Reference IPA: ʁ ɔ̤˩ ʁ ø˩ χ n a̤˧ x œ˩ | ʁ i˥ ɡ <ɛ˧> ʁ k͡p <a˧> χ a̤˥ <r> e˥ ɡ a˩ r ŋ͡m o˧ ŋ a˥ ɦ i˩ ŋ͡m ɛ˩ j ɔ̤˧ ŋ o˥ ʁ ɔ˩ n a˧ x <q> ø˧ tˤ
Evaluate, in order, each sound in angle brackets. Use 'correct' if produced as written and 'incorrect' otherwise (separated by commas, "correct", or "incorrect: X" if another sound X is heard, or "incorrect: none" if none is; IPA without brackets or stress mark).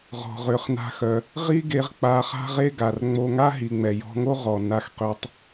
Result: incorrect: e˧, correct, incorrect: ʁ, correct